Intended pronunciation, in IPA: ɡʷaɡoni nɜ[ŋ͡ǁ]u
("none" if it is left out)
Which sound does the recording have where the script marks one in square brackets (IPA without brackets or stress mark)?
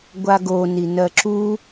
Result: ǁ